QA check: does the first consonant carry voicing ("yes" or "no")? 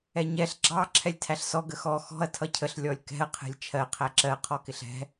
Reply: yes